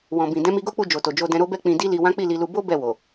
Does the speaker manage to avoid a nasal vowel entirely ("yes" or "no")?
no